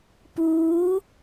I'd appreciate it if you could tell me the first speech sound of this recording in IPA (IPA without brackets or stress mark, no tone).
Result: p